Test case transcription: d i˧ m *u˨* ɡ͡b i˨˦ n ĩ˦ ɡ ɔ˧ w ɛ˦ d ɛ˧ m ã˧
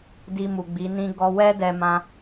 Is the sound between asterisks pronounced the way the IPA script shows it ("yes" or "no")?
yes